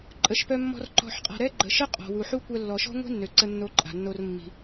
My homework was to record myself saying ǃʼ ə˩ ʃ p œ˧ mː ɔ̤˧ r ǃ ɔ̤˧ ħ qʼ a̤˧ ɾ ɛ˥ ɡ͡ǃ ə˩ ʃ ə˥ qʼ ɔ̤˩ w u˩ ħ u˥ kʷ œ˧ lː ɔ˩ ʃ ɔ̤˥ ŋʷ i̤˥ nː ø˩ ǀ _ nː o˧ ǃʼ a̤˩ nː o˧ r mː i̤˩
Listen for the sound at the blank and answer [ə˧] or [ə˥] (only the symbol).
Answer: ə˧